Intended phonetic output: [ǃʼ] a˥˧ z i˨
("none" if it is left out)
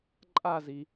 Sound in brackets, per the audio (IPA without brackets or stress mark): ǃʼ